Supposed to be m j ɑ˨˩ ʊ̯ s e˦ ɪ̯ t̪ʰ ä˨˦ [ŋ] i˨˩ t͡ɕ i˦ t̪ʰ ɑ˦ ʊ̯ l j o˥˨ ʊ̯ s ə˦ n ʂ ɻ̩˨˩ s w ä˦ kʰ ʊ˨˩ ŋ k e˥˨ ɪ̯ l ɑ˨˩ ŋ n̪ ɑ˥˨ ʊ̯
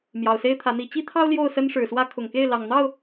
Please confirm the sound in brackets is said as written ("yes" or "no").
no